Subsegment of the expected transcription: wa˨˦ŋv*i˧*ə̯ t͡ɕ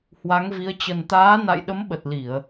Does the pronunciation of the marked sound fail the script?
yes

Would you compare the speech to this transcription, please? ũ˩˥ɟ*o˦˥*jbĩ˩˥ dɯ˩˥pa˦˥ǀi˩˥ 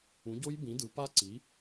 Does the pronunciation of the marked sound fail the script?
no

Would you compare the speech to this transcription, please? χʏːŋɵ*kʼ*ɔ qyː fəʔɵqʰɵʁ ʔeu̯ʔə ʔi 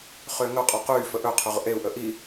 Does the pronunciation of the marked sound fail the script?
yes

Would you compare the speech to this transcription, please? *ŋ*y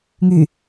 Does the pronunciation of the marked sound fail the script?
no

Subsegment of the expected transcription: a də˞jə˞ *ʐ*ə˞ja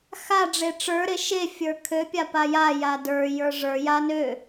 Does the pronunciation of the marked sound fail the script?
no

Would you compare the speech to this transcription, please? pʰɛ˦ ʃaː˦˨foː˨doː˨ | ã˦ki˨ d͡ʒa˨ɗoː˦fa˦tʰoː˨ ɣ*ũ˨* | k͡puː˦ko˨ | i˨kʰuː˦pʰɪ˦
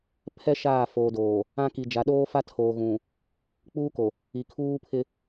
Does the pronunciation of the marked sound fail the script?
no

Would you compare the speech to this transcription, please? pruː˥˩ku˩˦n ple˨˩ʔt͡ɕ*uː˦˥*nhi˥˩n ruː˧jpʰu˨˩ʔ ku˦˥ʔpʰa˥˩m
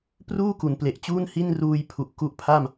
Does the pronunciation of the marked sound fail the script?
yes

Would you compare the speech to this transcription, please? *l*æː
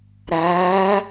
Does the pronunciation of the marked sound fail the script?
yes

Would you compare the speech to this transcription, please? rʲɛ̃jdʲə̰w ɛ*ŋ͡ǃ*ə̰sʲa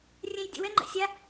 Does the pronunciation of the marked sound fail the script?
no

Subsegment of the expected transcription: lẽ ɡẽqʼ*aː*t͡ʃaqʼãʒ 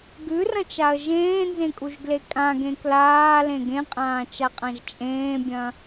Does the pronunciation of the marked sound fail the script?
yes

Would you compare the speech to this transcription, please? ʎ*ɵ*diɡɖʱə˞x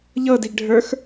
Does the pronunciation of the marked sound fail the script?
yes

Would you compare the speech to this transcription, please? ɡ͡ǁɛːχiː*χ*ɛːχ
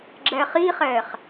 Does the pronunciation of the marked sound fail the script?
no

